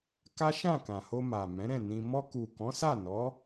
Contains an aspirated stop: no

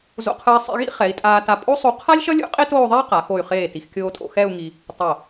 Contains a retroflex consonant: no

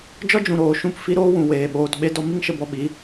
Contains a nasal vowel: yes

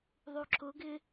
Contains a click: yes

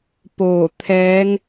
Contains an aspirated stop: yes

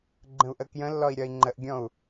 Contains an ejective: no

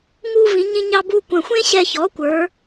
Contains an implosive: no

